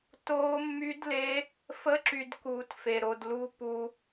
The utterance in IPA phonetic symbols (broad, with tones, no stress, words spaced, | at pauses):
toː˦˥mːy˦˥dle˦˥ | fə˦˥ǁy˧d kuː˧tfe˧ɾo˧d lu˦˥ pu˧